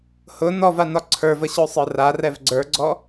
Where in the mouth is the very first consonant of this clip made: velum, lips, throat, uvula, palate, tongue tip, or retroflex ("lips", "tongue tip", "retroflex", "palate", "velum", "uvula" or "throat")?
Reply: throat